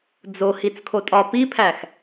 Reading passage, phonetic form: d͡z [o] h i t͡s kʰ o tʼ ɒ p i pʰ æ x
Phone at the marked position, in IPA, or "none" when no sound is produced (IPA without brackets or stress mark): o